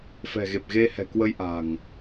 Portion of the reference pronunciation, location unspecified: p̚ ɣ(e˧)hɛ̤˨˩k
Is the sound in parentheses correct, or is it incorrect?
correct